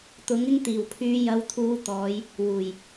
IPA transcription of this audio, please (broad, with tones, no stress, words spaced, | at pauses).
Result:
t̪ʊ˨˥ŋɪ˥ŋ t̪iː˨˩wpʰyː˨˧jɐ˨˧wt̪ʰuː˨˧ t̪ɔː˨˧j | wuː˨˩j